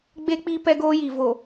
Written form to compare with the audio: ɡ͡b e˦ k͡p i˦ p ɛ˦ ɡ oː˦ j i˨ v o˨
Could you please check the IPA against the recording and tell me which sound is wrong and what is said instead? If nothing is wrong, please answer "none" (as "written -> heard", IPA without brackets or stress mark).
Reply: none